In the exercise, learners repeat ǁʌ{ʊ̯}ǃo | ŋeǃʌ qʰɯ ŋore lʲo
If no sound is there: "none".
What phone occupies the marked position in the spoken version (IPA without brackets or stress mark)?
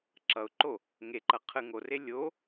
ʊ̯